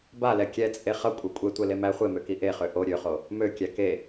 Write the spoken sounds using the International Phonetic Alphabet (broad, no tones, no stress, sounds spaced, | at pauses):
b a l ɛ kʲ ɛ t͡sʼ e χ ʌ kʷʼ ɛ kʷʼ e tʷ ɛ l e m æ χʷ e m ø k i ʔ e χ ø ʔ o ɾʲ ø χ o | m ø kʲ æ k e